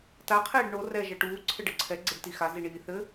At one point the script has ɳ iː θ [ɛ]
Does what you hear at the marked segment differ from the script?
yes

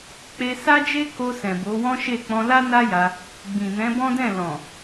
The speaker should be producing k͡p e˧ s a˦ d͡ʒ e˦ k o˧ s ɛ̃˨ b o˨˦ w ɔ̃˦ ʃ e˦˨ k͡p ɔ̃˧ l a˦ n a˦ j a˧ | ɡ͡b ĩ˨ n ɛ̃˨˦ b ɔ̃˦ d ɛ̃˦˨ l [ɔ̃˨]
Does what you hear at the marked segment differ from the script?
no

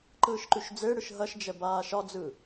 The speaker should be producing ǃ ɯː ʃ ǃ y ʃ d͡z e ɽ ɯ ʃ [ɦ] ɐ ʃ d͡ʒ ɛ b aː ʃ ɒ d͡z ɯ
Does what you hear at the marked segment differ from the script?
no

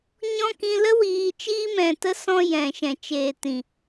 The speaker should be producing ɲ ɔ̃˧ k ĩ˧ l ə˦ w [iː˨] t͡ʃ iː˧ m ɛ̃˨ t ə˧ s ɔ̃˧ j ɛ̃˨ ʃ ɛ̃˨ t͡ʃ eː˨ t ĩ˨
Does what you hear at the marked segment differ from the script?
no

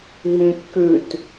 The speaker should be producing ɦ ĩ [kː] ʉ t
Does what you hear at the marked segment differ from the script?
no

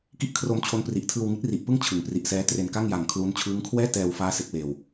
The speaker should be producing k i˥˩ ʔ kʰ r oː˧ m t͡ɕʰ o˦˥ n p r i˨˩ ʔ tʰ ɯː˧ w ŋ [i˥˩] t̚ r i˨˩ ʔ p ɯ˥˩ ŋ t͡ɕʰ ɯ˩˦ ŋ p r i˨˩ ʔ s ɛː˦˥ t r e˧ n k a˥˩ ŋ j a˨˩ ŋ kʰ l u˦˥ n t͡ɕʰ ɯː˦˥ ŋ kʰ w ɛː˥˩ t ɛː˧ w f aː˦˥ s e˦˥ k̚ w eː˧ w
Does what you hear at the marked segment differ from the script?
yes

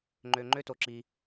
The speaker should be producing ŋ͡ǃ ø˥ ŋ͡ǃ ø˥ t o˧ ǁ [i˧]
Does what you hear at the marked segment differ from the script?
no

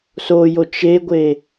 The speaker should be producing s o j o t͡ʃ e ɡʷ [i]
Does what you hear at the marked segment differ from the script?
yes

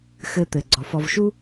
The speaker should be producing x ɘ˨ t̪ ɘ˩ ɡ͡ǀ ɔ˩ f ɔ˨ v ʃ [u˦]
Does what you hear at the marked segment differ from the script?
no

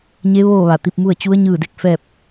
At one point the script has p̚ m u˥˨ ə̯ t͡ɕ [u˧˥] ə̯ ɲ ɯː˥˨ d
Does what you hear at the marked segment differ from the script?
no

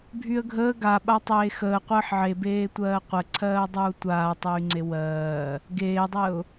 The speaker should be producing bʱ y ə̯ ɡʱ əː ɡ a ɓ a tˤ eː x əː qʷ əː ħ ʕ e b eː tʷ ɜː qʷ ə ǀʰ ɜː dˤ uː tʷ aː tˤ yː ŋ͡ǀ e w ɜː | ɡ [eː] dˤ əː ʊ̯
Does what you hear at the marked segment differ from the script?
no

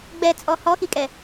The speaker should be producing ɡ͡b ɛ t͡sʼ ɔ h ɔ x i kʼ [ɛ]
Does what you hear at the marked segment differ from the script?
no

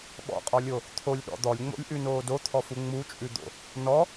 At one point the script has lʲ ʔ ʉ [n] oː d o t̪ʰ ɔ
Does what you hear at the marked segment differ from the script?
no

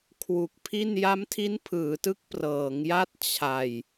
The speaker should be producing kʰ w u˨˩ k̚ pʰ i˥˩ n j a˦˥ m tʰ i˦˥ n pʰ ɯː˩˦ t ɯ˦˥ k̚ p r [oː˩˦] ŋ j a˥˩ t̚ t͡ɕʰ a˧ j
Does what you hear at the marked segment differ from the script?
yes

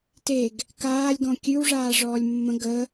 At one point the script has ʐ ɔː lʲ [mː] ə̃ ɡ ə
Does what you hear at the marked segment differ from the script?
no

